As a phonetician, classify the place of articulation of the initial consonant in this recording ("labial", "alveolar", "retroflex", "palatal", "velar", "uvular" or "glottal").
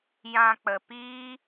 palatal